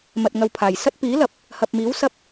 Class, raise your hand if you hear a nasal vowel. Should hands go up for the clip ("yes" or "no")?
no